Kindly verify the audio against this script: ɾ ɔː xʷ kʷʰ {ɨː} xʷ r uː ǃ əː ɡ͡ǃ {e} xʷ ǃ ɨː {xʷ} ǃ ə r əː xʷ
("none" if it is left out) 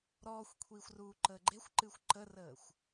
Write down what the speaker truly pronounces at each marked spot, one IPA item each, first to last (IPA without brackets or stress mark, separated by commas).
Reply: iː, e, xʷ